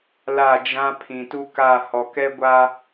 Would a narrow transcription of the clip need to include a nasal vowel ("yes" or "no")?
yes